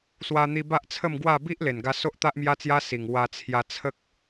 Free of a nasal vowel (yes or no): yes